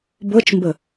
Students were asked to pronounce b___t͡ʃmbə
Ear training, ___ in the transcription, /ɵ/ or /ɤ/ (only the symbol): ɤ